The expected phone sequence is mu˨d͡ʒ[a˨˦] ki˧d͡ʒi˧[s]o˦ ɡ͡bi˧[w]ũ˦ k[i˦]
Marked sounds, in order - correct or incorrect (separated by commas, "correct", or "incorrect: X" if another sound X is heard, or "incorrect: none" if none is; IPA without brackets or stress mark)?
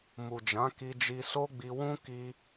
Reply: incorrect: ã˨˦, correct, correct, correct